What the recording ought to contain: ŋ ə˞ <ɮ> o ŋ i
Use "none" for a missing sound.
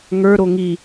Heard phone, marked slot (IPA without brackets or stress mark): ɾ